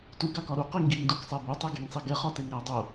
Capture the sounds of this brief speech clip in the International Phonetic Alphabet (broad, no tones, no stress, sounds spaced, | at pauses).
t u ɡ a k ɒ ɾ u q i ŋ ɡ i ŋ d u k sˤ ɛ b o tˤ ɛ ɡ e ŋ sˤ i ɡ ɛ χ ɒ t e ŋ ɾ æ dˤ o